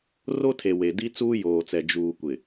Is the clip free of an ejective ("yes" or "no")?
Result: yes